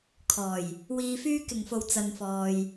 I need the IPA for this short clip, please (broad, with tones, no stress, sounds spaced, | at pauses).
kʰ ɔː˨˩ j | w iː˨ f yː˧ k ɪ˨˩ ŋ f o˨˩ w t͡s ɐ˨ n f ɔː˨ j